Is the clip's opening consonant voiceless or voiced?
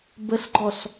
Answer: voiced